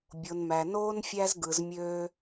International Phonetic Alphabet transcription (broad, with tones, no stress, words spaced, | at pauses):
bʲo˨nmæ˨noː˦n fʲæ˦zɡɯ˨zmʲøː˦